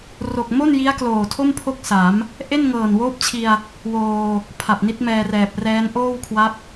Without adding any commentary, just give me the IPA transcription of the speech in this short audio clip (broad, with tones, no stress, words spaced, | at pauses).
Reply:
ro˨˩k̚mo˥˩n ji˦˥a̯kloː˨˩tʰo˥˩m pʰo˥˩k̚sa˩˦m | ʔe˥˩nŋɤː˨˩nwoː˦˥p̚t͡ɕʰi˧a̯ | woː˧ | pʰa˨˩p̚ni˦˥t̚mɛː˧rɛː˨˩p̚ rɛː˦˥n ʔoː˥˩wkʰwa˦˥p̚